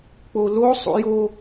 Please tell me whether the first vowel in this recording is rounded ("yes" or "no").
yes